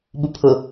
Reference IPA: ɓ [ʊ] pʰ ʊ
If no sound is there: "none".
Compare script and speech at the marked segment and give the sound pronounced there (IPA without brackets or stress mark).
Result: u